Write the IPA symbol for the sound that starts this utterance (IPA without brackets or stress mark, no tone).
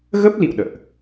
ɣ